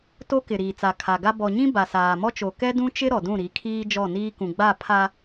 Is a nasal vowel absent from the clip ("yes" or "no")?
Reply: no